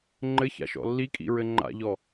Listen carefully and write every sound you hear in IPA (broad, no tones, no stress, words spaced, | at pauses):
ŋ͡ǃɘ ça̰ʃɔ̰lːikʼḭ ɹɘŋ͡ǃa̰ʎɔ